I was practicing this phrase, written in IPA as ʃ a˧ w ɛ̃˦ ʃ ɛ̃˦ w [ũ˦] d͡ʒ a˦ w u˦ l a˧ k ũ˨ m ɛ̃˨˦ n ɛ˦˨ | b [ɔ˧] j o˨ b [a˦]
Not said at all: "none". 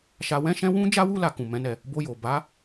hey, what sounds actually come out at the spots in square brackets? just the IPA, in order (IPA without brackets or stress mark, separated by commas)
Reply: ũ˦, o˧, a˨˦